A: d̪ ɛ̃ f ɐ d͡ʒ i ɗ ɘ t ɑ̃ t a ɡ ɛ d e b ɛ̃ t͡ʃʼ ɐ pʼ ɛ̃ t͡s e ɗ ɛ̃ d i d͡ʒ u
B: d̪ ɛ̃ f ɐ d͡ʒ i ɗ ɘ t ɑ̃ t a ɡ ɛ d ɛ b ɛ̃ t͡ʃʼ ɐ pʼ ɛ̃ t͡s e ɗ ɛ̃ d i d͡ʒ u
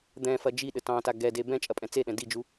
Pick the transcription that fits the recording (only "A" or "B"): A